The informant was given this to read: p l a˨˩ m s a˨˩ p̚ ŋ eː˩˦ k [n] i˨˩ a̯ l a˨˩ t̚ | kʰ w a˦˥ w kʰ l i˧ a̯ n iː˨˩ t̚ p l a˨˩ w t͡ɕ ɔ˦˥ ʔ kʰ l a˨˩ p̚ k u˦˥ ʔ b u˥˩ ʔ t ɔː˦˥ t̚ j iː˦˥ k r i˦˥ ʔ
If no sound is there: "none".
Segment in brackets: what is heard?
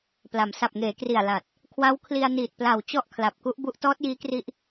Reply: r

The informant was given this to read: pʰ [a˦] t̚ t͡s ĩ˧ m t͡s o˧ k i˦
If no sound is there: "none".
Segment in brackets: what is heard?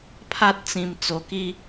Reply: a˦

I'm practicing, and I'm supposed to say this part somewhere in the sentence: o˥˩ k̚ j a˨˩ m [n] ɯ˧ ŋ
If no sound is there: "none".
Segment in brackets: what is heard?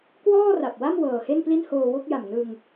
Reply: n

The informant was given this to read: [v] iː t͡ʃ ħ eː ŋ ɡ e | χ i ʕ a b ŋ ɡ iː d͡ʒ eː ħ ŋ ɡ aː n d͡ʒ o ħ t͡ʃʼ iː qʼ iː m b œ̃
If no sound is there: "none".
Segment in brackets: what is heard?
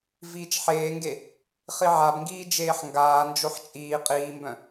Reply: v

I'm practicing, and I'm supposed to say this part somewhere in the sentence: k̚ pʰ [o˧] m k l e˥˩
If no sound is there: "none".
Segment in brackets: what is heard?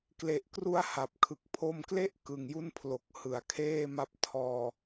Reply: o˧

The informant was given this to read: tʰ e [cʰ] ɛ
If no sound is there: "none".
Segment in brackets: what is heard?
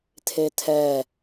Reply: tʰ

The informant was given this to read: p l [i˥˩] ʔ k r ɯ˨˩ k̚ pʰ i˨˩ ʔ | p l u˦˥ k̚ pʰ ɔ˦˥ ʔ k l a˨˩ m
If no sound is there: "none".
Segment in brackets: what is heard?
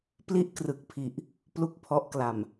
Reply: i˦˥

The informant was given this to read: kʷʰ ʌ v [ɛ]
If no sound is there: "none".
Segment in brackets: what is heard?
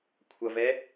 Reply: ɛ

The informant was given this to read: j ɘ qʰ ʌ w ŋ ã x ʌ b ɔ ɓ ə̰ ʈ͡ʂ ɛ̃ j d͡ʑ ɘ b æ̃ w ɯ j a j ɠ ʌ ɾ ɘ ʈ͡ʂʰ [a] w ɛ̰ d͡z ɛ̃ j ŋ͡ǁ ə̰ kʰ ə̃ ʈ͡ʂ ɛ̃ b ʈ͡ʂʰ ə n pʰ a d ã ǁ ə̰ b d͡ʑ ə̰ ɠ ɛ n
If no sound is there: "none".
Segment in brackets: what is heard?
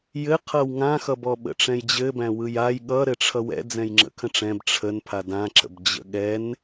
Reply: ʌ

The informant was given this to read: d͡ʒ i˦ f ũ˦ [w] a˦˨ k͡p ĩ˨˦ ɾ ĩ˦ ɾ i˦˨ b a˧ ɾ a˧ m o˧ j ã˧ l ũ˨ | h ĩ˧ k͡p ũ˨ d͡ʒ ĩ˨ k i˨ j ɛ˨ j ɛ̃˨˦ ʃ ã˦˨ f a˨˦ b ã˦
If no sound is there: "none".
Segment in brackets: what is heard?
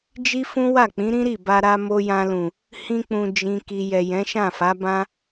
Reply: w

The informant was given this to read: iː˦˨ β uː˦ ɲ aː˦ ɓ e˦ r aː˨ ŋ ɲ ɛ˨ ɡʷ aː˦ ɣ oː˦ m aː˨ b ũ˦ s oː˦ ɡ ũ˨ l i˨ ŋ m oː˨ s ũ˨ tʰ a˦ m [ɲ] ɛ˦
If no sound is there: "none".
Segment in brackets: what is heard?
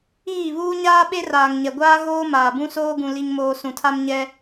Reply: ɲ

